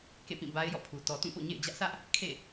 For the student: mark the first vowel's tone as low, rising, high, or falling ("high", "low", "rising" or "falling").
falling